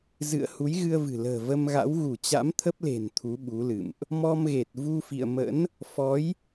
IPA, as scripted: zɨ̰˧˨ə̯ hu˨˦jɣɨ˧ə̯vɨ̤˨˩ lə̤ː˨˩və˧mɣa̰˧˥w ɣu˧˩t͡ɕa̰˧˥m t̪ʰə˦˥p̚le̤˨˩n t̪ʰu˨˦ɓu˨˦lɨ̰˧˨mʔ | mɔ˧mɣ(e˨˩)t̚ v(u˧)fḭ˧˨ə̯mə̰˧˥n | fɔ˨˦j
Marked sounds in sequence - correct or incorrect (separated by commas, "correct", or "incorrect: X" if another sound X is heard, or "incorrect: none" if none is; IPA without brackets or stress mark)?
correct, correct